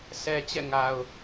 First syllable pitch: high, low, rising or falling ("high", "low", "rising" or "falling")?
low